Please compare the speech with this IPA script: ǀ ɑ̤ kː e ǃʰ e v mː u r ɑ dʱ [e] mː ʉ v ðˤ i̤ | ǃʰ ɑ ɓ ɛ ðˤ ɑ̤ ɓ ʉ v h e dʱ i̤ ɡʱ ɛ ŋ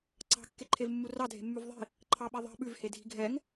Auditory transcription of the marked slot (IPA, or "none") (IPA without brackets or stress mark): e̤